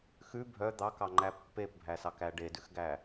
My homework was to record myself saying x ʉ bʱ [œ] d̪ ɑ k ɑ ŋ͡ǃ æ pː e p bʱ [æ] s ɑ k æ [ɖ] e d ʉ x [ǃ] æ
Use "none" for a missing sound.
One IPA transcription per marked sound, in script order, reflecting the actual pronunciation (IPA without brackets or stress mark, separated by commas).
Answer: œ, æ, ɖ, ɡ